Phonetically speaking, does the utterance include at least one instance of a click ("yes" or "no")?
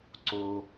yes